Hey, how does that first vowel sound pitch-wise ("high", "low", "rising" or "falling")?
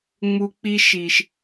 high